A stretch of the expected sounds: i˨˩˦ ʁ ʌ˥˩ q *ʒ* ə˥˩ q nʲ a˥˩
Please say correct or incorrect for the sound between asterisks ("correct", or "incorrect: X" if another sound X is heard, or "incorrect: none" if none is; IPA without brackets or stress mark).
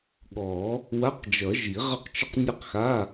incorrect: t͡ʃ